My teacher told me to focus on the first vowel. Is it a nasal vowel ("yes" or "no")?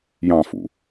yes